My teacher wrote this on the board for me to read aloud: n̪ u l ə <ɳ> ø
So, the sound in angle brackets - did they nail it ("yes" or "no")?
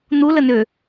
no